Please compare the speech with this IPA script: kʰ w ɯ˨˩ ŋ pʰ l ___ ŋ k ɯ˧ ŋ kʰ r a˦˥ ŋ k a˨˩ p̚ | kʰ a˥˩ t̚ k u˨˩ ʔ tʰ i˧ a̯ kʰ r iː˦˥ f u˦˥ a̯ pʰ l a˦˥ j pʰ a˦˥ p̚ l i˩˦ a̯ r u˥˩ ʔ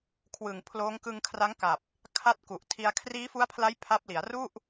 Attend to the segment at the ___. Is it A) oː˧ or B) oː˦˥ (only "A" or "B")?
B